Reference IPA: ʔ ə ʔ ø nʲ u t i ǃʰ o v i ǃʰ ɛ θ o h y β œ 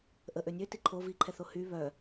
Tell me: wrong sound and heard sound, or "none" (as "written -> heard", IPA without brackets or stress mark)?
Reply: u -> ø